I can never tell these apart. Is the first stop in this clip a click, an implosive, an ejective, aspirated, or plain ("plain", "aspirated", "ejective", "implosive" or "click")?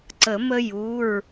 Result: click